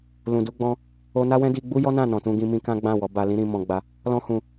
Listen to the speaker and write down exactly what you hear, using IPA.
l ũ˨ d u˧ ɡ͡b ɔ̃˧ | o˧ n a˦ w ɛ̃˦ d i˧ ɡ͡b u˦ j ɔ˦ n ã˦˨ n ɔ̃˨ t ũ˧ ɡ ĩ˧ m ĩ˧ k ã˦ ɡ͡b ã˦˨ w ɔ˨˦ b a˧ l ĩ˦ ɾ ĩ˧ m ɔ̃˧ ɡ͡b a˧ | l ɔ̃˧ h ũ˨

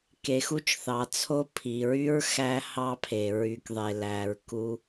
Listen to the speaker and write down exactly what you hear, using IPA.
k e˩ x u˦ t͡ʃ θ ɑ˩ t͡sʰ o˦ pʰ i˩ ɹ y˥ ɹ x æ˥ h ɑ˥ pʰ e˩ ɹ y˨ k ðˤ e˨ l æ˨ ɹ k u˦

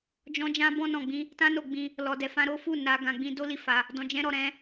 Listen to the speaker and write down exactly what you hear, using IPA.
d͡ʒ ɔ̃˧ d͡ʒ ã˧ b ɔ̃˧ n ɔ̃˨ ɡ͡b ĩ˧ | t ã˦ n o˧ ɡ͡b ĩ˧ | l ɔ˨ d ɛ˨ f ã˧ ɾ o˦ f u˦˨ n a˧ ɡ ã˧ ɡ͡b ĩ˦ d o˦ l i˦˨ f a˧ | d ɔ̃˧ d͡ʒ ɛ̃˦ ɾ ɔ˧ ɾ ɛ̃˦

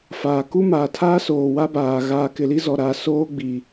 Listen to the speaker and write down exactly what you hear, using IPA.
f aː˨ k u˦ m aː˨ tʰ aː˦ s oː˨ w a˦ b aː˨ ɣ aː˨ k ɪ˨ l i˦ z ɔ˨ ɾ a˦ s oː˦ ɡ͡b i˨

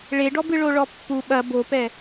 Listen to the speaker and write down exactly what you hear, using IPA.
ɭ e ɖ ɔ b ɨ ɭ o ɭ ɔ pː u ɓ ɐ b o p ɛ

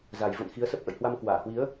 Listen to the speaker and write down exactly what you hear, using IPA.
z a˨˩ j v ə̰˧˨ n x i˨˦ ə̯ s ə˦˥ p̚ ʔ ə̰˧˨ j h w a˧ m k w aː˧˩ h w i˨˦ ə̯

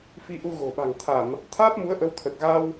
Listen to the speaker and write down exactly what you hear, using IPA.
f i˧ ʔ u˧ ɣ o̤˨˩ ɓ a̤˨˩ ŋ t̪ʰ a˧˩˨ m | t̪ʰ aː˦˥ p̚ m u˨˦ ə̯ ʔ ə˨˦ w t̪ʰ ə˨˩ t̚ ɣ a˧ w

